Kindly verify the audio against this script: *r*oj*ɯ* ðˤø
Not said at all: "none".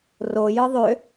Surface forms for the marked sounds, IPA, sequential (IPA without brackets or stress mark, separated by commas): r, ɯ